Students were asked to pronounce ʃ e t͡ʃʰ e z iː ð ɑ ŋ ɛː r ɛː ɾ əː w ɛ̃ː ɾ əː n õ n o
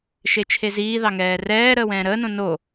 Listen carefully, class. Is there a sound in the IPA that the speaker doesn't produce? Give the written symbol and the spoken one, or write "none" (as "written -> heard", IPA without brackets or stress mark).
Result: none